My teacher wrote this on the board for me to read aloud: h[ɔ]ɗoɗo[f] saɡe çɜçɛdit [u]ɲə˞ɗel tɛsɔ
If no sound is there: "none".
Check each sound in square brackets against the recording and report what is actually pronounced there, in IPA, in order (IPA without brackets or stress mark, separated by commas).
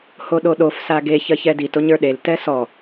o, f, o